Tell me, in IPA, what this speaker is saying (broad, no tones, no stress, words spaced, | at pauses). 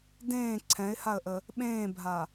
dẽː ǀʰɛ̃ɪ̯haə̯ʔə | ɓẽːbʱa